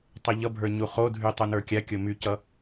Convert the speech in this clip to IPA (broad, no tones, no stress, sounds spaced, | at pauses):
tˤ ʌ ʎ ʌ bʱ ə˞ ɲ u χ o dʱ y tˤ u n ə˞ kʲ a kʲ o m y c ʌ